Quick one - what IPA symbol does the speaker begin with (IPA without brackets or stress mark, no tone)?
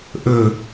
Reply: ʔ